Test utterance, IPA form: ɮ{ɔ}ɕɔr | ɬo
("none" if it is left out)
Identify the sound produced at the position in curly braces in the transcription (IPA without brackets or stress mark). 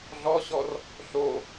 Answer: ɔ